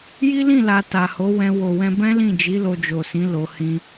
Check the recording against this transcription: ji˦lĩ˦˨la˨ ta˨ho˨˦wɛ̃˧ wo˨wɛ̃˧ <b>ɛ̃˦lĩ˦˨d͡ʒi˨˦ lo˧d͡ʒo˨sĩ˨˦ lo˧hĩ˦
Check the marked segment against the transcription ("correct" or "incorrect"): correct